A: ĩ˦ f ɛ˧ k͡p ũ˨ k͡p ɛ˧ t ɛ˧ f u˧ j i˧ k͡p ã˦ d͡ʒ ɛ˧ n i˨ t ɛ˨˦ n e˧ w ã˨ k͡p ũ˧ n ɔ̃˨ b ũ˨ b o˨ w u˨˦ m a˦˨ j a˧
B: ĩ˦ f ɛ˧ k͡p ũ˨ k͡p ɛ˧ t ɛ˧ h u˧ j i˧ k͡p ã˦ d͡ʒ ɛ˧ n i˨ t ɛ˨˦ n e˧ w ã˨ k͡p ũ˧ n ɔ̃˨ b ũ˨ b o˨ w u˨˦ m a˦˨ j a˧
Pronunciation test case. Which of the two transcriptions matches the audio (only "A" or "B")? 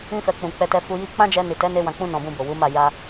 A